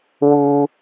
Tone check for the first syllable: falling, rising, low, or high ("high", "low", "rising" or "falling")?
high